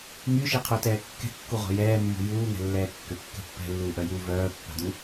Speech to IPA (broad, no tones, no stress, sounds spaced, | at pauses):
ŋ y ʃ i qʰ u t ɛː kː ɛ̤ kː u ʁʷ a̤ j ɛː mː ṳ j uː ŋ ɛ̤ lː ɛː kː ʏ kː ɛ̤ pː ɛ̤ lː uː ʔ œ j uː v œː pː a̤ d u